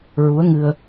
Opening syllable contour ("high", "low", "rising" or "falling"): rising